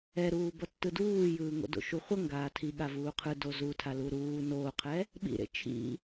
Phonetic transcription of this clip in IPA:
ɛ ɾ uː b ʌ tː ɯ d uː j ɯː ŋ o̰ d o̰ ʃ u χʷ ʌ ŋ ɡ aː tʰ i ɠ a v uː qʰ ɯ d o z u tʰ a l u ɾ uː n oː qʰ ɛ | ɓ ḭ ɾ ḛ t͡ʃʰ ḭ

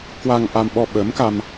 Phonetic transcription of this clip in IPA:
k w a˧ ŋ ʔ a˧ m ɓ ɔ˧ ɓ ə˨˦ m k a˧ m

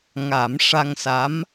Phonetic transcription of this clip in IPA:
ŋ a˨˩˦ m ʂ a˧ ŋ s a˧˥ m

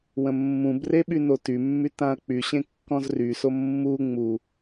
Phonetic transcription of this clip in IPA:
w ə̃ mː ũ b r e ɓ y n o t y mː y t ã ɐ̯ k͡p y ɕ ẽ kː ɔ̃ z r y s o mː u ŋ͡m u

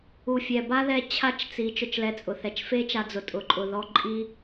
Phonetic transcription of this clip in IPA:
u˨ fʲ ɛ˨ b a˦ ð ɛ˧ t͡ɕʰ a˦˨ t͡ʃ t͡s i˨˦ t͡ʃ ʊ˧ t͡ʃ l ɛ˧ t͡sʼ ʊ˨ θ ɛ˧ t͡ʃ f e˦ t͡ʃ a˧ d͡z ʊ˨ tʼ ʊ˧ ǃʼ ʊ˧ ð ɔ˦ ǃʼ i˦

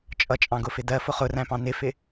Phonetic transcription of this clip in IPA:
t͡ʃʼ ʌ t͡ʃʼ ɑ̃ ɡ ʊ f ɪ d ɜ f ʊ χ ʊ r æ̃ p ɑ̃ n ɪ f ɪ

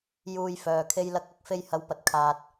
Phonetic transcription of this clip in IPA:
j uː˧ j f œː˨ kʰ e˧ j l ɐ˧ k̚ ɐ˨˥ k̚ f e˧ j h ɐ˨˧ w p ɐ˨ t̚ kʰ aː˨ t̚

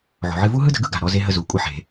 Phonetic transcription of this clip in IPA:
ʕ o̤˩ ʕ ɨ˧ v u˥ ɦ ɯ˥ d ə̤˧ ɡ ɯ˥ ɡ a̤˩ ɾ ɔ˧ z e˧ ɦ ə˧ z u˩ kʷʼ ɨ˧ ħ e̤˩

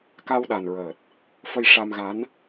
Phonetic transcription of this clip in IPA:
k a˧ w ɗ a˨˩ n ɹ əː˨˩ t̚ | f ə˧ j ʂ a˧ m ɣ a˧˥ n

